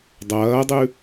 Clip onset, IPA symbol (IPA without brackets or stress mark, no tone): dˤ